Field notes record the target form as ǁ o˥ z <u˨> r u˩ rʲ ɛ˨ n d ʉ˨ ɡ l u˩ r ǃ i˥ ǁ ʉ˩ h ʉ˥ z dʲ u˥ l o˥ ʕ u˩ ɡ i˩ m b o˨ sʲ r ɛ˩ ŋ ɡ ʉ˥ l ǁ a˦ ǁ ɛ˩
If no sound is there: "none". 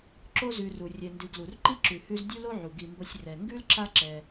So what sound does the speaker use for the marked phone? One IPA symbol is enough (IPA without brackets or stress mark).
ʉ˨